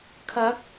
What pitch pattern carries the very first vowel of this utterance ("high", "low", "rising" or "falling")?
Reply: rising